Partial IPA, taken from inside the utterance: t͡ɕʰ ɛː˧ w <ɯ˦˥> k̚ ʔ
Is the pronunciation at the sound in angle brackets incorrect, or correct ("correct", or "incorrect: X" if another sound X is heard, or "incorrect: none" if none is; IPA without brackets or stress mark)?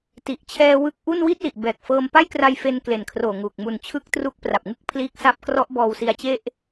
correct